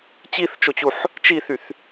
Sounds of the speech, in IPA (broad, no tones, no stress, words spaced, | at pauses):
t͡ɕiθt͡ʃot͡ɕuħ | t͡ʃiθyθ